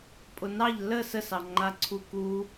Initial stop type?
ejective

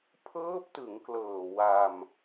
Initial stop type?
aspirated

